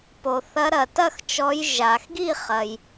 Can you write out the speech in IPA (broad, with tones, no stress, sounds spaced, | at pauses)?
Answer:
p o˩ θ ɐ˨˦ ɾ ɐ˩ t ɐ˥˩ x t͡ʃ ɔ˨˦ j ʒ a˩ x ɡ i˥˩ χ ɐ˩ j